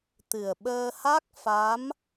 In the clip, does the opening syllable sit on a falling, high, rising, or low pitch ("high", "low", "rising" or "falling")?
low